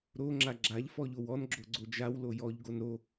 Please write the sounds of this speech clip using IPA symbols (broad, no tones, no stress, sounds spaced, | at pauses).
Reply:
ɾ o ŋ͡ǁ a ɡ͡ǁ a ʎ f ɔ ʎ o w ɔ n ɡ͡ǁ o ɡ͡ǀ o d͡ʒ a w l o j ɔ ʎ ɡ o n ɾ o